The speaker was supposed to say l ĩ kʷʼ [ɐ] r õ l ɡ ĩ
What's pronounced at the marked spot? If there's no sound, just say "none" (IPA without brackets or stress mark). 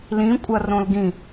ɐ